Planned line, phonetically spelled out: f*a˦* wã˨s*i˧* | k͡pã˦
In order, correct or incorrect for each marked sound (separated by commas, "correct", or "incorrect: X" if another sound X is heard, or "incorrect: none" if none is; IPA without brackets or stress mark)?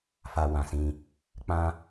incorrect: a˨, incorrect: ĩ˧